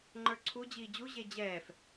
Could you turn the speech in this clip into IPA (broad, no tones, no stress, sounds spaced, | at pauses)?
ŋ͡ǃ ə˞ ǀʰ u d͡ʑ iː d͡ʑ u ʑ e d͡ʑ ɛː f